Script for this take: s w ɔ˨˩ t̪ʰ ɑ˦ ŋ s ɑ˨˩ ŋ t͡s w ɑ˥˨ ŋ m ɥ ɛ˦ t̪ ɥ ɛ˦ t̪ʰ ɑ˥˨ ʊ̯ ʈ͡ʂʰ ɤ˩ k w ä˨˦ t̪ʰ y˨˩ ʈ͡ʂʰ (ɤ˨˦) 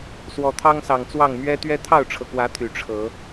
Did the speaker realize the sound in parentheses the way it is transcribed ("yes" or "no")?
yes